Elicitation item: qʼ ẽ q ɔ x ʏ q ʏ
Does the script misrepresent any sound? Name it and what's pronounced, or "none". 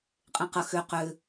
ɔ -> ə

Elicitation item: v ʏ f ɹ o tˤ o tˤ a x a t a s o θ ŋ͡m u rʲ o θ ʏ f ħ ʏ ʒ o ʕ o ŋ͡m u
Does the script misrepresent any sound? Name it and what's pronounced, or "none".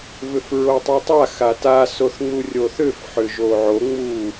none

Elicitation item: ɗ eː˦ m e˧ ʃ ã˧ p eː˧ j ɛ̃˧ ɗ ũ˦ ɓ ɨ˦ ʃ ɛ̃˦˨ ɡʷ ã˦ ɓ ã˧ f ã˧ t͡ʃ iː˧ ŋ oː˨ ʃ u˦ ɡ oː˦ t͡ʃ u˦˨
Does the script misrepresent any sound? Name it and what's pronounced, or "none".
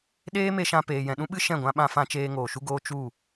iː˧ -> eː˧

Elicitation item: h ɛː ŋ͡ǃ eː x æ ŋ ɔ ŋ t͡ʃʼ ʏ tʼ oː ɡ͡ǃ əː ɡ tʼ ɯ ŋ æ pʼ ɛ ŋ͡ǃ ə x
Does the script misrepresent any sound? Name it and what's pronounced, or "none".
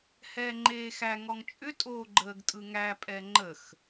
none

